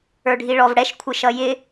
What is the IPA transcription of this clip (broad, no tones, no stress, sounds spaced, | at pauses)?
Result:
ə˞ ɖʱ i ɭ ɔ v ɽ ɛ ʃ kʷʰ ɪ ʃ ʌ j ɪ